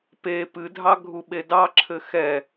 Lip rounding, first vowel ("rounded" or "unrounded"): unrounded